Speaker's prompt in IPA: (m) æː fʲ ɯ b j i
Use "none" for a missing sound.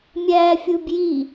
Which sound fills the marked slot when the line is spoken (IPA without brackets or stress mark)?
mʲ